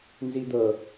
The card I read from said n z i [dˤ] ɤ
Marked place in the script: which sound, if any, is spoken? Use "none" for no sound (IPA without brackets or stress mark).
d̪